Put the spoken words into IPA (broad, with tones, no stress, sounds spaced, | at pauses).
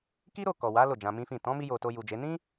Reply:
k i˦ ɾ o˦˨ k ɔ˨ w a˨˦ l o˦˨ d͡ʒ ã˧ m ĩ˦ f ĩ˦˨ t ɔ̃˨˦ m i˧ j o˨ t o˧ j u˨ d͡ʒ e˨˦ n ĩ˦